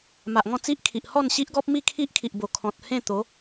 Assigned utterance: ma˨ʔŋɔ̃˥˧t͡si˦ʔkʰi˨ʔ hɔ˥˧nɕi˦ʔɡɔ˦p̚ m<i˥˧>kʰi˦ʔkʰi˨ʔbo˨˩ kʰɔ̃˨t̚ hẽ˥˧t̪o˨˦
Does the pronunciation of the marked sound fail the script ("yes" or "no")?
no